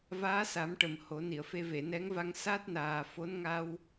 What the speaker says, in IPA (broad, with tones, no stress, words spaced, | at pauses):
vaː˧˥sa˨˩˦mʈə˨˩˨m ho˨˩˦ni˨˩˨ə̯fe˧ ve˨˩˨nɛ˧˥ŋva˧ŋ sa˦˥t̚naː˨˩fo˧˥nŋa˧w